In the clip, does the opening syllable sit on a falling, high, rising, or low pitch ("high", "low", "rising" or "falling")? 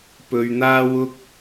low